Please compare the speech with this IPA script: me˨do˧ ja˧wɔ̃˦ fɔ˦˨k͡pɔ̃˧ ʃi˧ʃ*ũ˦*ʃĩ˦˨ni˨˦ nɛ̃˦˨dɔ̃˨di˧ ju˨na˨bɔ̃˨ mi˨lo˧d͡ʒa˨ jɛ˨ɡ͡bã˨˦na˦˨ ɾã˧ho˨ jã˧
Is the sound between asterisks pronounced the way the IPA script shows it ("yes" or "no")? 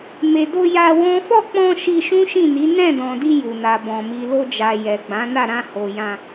yes